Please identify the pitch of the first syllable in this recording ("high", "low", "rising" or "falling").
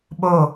falling